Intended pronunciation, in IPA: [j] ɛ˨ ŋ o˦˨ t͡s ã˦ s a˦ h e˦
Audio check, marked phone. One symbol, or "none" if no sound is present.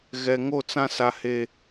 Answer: ɣ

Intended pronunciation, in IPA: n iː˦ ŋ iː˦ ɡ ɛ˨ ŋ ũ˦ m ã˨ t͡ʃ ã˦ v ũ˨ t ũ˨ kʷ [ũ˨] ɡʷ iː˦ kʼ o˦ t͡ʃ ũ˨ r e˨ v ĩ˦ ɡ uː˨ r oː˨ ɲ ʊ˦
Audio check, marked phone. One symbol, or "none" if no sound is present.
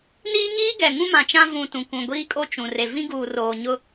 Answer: ũ˨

